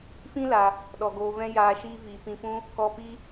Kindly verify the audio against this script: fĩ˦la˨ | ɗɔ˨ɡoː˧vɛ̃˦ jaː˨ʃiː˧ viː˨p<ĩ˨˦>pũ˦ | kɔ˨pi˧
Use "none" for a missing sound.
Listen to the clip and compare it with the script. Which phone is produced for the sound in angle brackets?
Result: ĩ˧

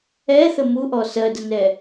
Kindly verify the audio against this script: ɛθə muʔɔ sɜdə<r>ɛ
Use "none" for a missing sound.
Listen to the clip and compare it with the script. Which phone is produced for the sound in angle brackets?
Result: n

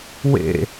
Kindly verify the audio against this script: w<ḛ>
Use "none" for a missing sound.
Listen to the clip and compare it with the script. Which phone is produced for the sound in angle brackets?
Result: ḛ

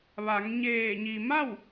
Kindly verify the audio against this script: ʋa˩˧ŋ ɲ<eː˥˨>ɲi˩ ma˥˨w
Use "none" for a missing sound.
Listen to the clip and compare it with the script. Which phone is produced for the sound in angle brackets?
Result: eː˧˩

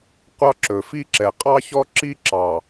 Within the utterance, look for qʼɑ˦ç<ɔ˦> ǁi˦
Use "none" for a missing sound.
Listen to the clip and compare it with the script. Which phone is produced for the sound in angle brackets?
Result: ɔ˦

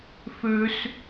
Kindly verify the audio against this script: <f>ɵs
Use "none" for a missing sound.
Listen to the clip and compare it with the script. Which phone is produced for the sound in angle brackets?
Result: f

